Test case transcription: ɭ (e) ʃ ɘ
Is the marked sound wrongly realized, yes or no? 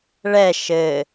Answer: yes